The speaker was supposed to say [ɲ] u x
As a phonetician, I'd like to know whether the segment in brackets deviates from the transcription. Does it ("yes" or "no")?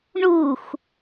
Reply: yes